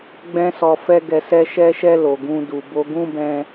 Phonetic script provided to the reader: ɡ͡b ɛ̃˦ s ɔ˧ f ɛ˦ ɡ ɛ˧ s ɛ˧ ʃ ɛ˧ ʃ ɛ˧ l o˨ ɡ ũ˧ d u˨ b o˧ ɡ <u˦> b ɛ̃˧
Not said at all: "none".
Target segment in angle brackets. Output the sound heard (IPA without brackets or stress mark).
ũ˦